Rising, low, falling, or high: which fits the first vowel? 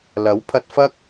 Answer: rising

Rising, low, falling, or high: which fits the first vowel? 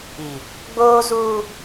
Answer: low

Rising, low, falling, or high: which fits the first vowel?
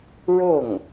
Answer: falling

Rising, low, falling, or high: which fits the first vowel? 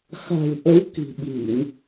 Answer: low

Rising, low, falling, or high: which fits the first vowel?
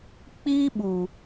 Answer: high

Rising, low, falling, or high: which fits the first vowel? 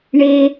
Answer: high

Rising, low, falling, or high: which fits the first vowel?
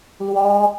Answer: high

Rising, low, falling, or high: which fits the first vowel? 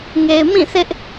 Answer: low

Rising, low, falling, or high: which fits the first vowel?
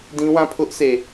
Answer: high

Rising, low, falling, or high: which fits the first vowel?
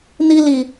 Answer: high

